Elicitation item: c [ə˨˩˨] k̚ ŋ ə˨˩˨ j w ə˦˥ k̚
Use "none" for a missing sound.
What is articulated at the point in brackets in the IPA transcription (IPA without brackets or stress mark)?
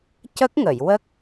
ə˦˥